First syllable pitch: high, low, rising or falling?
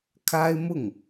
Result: high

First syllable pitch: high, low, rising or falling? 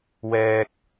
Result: high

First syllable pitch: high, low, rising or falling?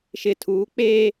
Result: low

